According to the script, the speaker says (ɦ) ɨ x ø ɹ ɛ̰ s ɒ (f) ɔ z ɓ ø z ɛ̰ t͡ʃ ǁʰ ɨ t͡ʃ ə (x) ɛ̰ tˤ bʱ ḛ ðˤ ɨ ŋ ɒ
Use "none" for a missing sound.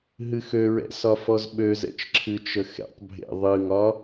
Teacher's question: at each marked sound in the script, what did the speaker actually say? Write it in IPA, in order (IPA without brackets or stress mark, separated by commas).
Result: ɦ, f, x